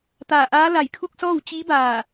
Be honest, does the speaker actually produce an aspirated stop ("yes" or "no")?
yes